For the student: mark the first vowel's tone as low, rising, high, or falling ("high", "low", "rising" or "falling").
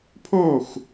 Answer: falling